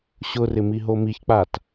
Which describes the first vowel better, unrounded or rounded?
rounded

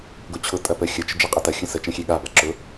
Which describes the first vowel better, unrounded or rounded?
rounded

